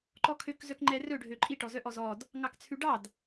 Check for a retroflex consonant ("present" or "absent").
present